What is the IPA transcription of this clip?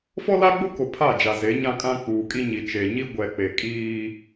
fɔ˦la˦ɡ͡bʊ˦ko˨ pʰa˦˨d͡ʒa˨ze˨˦ ɲã˦kʼã˦k͡puː˨kʼi˦ ɲi˨t͡ʃe˨ɲi˦ ɡʷɛ˨k͡pe˨kʼiː˦

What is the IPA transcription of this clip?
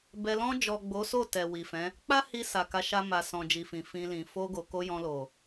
bɛ˧ lɔ̃˧d͡ʒɔ˨ ɡ͡bo˨˦so˦˨tɛ˨ wi˨fɛ̃˨˦ | k͡pa˦hi˧ sa˨ka˨˦ʃa˧ ma˨sɔ̃˨ d͡ʒi˨fĩ˨ fĩ˧lĩ˨ fo˧ɡo˨ ko˧ jɔ̃˧lo˨

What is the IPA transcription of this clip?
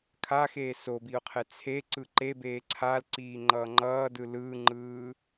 kʰaxeː sobiʊ̯qʰɛ t͡sʰeǀɯ ǃebeː ǀʰalǀiːŋ͡ǃʌː ŋ͡ǃʌːdɯ lɯːŋ͡ǃɯː

